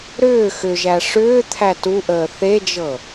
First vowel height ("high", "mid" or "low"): high